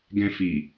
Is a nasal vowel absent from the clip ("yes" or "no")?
no